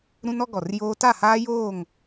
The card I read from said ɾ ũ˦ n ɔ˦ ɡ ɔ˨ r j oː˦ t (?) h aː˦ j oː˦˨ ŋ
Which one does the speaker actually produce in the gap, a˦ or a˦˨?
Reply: a˦˨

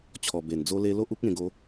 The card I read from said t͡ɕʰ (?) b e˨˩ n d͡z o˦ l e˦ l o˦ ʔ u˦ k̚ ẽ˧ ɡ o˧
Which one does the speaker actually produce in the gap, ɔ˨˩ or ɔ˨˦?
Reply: ɔ˨˩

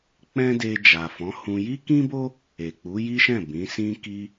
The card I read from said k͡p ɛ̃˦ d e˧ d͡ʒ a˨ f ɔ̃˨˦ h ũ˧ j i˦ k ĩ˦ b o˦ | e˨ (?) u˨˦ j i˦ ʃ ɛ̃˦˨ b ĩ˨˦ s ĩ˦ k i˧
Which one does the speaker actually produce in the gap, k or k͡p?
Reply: k͡p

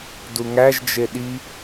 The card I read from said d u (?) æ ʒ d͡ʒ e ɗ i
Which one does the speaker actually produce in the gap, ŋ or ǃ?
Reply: ŋ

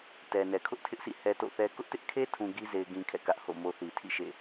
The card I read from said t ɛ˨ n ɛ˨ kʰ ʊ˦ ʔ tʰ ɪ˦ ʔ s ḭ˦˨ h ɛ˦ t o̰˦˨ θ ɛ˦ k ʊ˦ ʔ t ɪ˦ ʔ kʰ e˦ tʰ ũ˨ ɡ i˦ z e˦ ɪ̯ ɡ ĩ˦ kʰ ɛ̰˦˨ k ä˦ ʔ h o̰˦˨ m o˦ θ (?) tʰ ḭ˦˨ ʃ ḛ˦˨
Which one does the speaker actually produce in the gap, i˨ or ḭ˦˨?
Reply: i˨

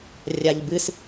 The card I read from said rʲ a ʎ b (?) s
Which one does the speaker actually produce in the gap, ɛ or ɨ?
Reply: ɨ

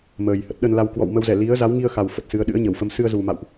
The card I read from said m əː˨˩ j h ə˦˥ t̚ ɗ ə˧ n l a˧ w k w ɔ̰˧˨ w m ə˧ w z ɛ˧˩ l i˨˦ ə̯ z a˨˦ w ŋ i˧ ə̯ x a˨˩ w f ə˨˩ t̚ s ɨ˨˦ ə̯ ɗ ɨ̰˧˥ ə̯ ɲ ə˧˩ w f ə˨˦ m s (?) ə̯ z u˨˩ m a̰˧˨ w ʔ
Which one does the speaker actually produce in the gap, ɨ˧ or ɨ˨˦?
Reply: ɨ˧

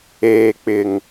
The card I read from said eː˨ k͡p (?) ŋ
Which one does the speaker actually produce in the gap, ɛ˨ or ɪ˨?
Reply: ɪ˨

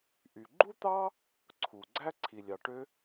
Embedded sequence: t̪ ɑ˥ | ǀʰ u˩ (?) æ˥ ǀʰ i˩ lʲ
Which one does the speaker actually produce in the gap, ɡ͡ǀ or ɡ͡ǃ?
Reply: ɡ͡ǀ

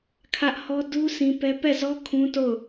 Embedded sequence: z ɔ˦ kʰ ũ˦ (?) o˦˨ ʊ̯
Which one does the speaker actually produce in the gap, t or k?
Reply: t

